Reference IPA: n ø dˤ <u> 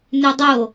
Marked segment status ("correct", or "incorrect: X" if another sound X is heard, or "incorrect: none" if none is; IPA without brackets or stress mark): incorrect: o